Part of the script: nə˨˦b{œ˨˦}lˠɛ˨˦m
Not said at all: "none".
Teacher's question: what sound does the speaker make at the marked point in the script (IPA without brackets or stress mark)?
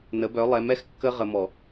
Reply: œ˨˦